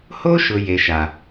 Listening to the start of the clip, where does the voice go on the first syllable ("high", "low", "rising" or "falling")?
high